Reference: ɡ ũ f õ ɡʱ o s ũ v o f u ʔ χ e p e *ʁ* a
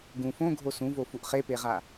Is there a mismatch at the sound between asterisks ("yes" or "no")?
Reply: no